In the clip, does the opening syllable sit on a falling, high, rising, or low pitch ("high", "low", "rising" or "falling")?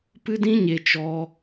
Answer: high